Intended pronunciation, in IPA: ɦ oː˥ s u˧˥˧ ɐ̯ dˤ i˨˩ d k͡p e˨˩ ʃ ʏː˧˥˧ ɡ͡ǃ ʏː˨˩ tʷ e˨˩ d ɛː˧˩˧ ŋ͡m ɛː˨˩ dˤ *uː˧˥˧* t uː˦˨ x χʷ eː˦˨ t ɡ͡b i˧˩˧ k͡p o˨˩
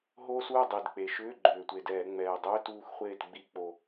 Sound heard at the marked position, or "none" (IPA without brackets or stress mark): ʏː˧˥˧